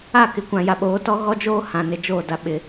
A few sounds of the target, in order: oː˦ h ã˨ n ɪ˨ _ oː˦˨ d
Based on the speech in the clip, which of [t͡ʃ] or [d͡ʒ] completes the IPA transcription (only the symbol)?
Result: d͡ʒ